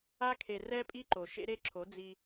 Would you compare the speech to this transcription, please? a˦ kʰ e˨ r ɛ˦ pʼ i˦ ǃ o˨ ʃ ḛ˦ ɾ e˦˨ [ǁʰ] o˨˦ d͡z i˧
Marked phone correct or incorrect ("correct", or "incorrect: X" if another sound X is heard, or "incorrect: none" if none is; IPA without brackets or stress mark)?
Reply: correct